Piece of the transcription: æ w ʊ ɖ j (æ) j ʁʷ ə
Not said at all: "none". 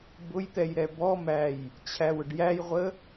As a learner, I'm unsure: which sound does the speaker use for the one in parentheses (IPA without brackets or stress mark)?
æ